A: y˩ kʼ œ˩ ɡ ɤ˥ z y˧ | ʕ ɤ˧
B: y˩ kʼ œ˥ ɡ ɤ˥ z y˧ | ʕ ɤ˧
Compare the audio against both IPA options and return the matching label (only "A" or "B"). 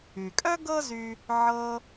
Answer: B